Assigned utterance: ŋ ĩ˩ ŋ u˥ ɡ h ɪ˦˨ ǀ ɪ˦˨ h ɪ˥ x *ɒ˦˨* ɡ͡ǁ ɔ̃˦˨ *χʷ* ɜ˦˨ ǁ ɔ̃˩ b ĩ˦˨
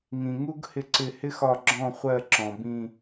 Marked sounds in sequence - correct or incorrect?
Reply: correct, correct

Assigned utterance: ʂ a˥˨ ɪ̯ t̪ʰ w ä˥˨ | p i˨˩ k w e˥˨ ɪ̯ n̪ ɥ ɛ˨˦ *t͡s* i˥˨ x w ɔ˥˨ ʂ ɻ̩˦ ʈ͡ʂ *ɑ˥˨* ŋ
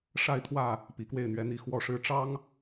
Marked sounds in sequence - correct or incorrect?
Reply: incorrect, incorrect

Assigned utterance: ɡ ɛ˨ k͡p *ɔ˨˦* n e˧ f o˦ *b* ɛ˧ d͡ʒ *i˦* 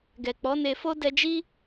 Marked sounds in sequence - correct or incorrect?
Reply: correct, incorrect, correct

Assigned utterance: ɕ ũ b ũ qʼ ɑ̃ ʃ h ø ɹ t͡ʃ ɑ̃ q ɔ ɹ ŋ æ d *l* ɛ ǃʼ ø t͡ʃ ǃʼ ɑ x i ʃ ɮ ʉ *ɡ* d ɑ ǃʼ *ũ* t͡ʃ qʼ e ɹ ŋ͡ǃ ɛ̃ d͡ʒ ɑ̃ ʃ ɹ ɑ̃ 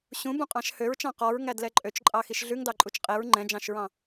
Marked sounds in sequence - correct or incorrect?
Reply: correct, incorrect, incorrect

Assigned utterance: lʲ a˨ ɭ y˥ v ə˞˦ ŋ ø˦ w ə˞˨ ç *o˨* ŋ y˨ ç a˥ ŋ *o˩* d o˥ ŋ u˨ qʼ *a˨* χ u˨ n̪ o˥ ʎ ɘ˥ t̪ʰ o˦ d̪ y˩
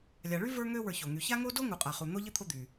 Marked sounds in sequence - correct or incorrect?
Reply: incorrect, incorrect, correct

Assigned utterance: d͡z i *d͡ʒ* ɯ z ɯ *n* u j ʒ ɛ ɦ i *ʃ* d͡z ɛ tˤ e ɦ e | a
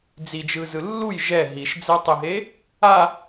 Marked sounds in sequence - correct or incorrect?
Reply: correct, incorrect, correct

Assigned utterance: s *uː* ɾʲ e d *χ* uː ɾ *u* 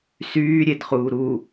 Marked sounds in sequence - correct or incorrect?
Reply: incorrect, correct, correct

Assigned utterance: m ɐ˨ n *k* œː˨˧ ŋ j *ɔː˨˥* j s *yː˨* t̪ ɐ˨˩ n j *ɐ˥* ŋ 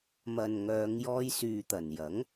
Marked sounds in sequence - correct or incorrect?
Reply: incorrect, incorrect, correct, incorrect

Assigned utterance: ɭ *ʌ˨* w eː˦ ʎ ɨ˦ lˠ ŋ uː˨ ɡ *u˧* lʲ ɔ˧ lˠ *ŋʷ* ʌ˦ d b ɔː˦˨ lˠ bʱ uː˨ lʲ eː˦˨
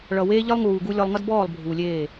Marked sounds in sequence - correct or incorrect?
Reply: correct, correct, incorrect

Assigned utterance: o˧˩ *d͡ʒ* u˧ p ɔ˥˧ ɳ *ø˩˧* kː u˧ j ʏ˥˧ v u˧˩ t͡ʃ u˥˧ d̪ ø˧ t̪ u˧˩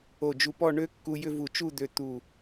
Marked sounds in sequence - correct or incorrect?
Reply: correct, incorrect

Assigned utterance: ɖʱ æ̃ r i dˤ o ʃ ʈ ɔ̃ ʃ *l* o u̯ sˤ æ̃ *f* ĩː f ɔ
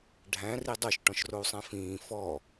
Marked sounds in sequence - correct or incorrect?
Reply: incorrect, correct

